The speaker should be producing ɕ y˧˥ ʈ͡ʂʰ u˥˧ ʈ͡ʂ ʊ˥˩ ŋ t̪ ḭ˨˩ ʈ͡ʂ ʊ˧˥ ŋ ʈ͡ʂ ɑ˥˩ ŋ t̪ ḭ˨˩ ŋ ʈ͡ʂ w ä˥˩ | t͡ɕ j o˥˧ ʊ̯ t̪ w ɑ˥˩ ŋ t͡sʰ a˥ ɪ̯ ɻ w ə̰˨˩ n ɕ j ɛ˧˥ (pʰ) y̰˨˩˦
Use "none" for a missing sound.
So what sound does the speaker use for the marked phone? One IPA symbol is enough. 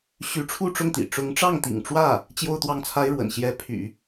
pʰ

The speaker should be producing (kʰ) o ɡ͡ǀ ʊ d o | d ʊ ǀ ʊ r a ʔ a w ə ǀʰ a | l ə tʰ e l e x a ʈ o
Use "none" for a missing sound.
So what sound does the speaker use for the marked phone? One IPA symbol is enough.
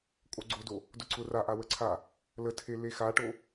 kʼ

